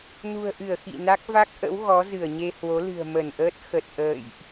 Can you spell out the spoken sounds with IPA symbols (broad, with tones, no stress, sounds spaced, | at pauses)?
n ṳ˨˩ ə̯ ʔ ɨ˧˩ ə̯ x ḭ˧˨ n a˦˥ k̚ v a˦˥ k̚ ʔ ə̰˧˥ w ɣ ɔ˨˦ z ɨ˧˩ ə̯ ɲ e˧ h w o˨˦ l ɨ̤˨˩ ə̯ m ə˧˩ n ʔ əː˦˥ t̚ x ə˨˩ t̚ ʔ ə̰ː˧˨ j ʔ